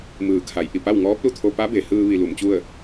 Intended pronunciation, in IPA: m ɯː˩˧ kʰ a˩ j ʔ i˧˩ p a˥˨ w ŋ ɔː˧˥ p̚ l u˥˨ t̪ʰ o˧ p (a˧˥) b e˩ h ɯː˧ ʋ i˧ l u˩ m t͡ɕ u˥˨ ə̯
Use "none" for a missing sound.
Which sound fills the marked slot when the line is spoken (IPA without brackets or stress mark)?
a˧˥